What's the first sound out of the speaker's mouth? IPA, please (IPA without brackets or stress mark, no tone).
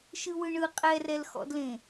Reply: ʃ